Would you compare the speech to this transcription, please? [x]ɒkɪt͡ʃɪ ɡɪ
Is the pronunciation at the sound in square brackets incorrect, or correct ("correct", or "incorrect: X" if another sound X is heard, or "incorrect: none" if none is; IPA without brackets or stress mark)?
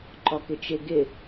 incorrect: ǃ